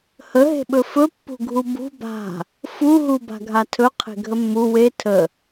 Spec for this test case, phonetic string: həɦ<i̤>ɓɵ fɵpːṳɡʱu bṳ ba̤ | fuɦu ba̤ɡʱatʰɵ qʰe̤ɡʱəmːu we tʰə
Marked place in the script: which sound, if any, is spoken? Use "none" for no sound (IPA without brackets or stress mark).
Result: e̤